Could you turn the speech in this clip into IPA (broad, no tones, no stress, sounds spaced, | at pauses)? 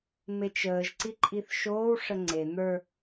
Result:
m e t͡ʃ əː ʒ ǀ i ǃʼ i θ ʃ oː w ʂ ə ŋ͡ǀ e n̪ ə˞